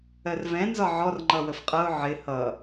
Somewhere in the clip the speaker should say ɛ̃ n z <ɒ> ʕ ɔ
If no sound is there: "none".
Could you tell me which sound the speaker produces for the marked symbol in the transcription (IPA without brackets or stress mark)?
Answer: ɒ